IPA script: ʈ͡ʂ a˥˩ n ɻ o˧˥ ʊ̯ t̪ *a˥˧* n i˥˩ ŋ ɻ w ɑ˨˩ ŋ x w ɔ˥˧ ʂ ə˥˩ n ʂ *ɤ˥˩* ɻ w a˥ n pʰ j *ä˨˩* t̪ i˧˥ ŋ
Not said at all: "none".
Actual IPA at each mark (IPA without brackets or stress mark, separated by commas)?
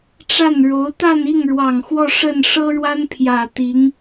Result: a˥˧, ɤ˥, ä˨˩